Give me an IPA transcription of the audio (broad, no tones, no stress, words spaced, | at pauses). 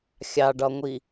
xʲɑɖɒŋʷi